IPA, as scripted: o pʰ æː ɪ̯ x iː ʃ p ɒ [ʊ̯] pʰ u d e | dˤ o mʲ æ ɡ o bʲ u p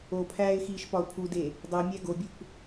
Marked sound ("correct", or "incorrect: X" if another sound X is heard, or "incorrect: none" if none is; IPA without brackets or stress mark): correct